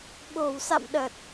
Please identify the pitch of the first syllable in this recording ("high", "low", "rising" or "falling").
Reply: low